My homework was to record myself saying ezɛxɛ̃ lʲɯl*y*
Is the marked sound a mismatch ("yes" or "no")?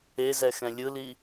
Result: yes